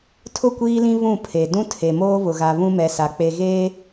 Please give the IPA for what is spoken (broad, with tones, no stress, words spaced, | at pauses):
tʰʊ˦˨kʷiː˦lĩ˦ βũ˦˨pʰe˨ dũ˦tʰe˨ moː˦βʊ˨ɣa˨ βũ˦mɛ˨˦sa˨ k͡pe˨ɣeː˦